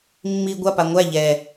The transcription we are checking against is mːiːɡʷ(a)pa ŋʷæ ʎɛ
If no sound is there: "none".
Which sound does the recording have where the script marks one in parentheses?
a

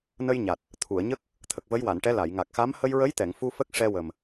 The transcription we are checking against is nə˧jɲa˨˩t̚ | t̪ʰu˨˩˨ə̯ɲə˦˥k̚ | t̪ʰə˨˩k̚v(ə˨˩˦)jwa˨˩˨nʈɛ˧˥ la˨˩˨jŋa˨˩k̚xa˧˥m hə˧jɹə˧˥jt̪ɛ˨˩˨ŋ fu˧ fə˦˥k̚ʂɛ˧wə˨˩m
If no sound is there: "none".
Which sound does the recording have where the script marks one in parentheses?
ə˧˥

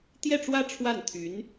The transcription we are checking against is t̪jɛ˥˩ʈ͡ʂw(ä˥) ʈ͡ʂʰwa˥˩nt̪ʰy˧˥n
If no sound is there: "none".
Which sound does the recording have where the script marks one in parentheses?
ä˥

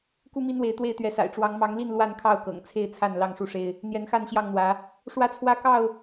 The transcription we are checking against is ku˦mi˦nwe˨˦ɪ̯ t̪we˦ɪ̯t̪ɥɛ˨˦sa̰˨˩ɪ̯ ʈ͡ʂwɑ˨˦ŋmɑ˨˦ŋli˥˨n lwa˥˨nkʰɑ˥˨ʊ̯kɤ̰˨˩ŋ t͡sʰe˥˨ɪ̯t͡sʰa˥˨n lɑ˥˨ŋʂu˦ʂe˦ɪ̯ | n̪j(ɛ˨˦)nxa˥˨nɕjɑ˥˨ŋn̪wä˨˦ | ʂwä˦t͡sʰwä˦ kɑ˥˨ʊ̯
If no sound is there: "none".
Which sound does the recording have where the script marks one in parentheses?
ɛ˨˦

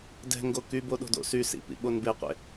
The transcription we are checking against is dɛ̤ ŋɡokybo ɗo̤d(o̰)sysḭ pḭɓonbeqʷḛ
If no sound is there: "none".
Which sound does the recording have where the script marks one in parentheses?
o̰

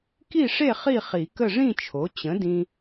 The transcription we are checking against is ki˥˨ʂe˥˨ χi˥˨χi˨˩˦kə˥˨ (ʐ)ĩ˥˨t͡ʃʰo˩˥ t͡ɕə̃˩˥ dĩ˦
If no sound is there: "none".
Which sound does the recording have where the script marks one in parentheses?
ʐ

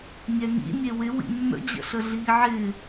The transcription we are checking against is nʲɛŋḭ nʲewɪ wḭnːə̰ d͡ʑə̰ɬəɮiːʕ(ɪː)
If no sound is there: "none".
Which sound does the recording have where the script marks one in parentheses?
ɪː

